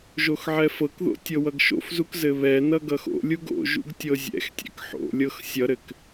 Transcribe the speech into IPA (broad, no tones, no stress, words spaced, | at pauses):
ʒoxʕɛfɤkðo̰ tʲɤwʌɡʃo̰fzuk zɘβɛnʌ ɡʌxo̰lʲuɡ o̰ʒṵɡ tʲɤzʲɛ̰xtʲɛ̰k ħo̰lʲɤx sʲʌɾɘk